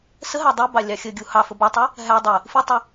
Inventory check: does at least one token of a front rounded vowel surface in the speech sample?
no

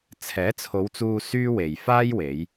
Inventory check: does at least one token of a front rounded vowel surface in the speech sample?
yes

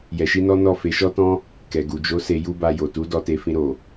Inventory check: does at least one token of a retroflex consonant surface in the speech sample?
no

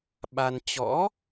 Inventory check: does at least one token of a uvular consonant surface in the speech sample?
no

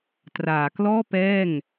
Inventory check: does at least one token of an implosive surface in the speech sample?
no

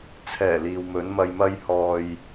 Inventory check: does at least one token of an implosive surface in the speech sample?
no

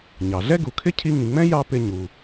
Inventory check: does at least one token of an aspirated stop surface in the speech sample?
yes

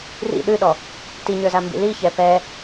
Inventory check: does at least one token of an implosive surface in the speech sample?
yes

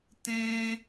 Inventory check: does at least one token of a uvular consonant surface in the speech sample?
no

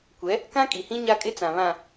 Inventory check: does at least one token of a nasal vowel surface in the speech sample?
yes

